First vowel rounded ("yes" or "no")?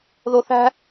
yes